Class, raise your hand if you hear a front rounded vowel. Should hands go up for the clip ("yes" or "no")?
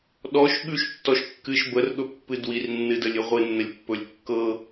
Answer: no